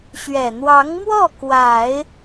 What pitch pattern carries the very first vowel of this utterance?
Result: low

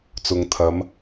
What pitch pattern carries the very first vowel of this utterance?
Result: low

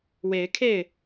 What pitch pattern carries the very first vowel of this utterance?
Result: rising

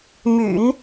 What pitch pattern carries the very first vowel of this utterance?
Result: low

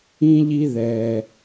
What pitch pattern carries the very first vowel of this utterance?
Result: high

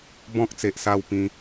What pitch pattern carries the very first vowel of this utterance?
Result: high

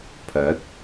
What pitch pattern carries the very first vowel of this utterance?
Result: rising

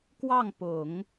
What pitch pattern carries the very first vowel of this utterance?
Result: falling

